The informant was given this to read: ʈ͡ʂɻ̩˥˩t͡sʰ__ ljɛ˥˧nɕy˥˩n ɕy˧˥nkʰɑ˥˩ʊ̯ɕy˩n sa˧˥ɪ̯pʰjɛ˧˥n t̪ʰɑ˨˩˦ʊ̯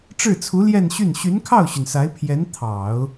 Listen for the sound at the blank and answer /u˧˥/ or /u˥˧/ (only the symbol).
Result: u˧˥